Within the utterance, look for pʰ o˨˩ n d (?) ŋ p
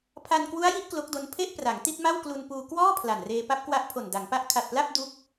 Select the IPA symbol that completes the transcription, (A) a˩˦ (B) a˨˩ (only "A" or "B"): A